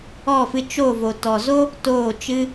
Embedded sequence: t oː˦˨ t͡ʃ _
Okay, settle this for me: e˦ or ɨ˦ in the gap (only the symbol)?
ɨ˦